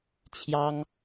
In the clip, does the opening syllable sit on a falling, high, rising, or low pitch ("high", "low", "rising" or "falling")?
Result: high